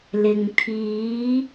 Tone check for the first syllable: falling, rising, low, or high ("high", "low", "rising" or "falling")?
low